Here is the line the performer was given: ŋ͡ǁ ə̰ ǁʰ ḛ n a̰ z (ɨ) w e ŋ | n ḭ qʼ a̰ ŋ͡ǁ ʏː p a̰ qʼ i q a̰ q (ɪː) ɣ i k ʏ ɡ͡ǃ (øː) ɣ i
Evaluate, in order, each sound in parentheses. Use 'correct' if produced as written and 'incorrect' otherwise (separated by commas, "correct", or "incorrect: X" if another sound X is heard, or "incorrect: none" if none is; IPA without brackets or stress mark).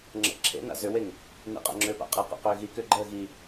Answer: incorrect: ʏ, incorrect: ʏː, incorrect: əː